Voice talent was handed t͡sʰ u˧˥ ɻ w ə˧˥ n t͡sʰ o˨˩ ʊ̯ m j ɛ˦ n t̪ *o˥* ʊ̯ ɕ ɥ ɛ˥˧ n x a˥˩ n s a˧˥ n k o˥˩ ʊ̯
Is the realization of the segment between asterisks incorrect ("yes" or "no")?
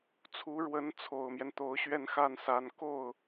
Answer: yes